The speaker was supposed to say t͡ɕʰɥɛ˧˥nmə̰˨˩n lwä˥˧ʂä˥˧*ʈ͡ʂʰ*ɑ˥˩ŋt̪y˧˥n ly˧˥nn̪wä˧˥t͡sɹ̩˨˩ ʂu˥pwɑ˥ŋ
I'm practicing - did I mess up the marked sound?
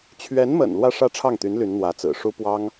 no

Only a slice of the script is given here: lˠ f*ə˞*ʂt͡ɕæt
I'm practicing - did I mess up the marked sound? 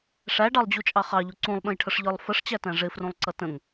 yes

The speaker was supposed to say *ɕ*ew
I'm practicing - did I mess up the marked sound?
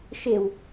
yes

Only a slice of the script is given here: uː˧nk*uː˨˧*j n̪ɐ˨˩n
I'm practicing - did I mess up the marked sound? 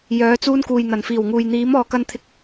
yes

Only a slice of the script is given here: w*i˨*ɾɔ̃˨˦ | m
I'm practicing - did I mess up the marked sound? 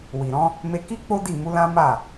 no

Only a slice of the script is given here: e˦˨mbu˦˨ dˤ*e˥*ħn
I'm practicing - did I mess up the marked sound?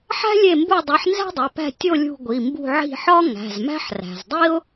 yes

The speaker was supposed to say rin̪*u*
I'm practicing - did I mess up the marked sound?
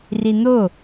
yes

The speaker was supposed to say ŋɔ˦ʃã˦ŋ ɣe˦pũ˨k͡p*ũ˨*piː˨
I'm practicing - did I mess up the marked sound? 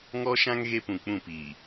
yes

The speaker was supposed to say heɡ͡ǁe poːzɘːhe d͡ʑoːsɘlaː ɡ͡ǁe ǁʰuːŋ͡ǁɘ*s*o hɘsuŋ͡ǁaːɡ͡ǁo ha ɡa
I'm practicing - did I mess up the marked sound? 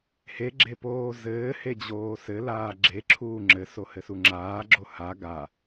no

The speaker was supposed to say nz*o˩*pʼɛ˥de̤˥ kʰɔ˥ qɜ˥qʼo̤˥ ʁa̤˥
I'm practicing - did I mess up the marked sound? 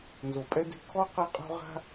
no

